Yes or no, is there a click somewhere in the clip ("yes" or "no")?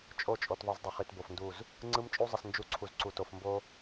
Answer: yes